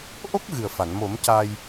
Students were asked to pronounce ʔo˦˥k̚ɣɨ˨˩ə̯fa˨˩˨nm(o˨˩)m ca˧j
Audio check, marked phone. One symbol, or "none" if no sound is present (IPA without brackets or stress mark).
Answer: o˨˩˦